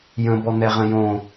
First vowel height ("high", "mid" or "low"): mid